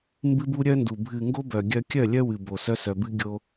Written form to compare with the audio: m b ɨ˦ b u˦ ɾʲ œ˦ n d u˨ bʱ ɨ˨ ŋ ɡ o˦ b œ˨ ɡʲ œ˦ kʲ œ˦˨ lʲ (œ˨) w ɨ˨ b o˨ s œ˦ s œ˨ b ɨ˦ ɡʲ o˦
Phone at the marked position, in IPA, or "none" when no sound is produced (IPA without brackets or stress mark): œ˦